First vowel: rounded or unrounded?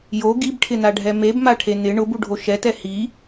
rounded